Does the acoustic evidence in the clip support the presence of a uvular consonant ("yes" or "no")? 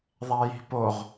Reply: yes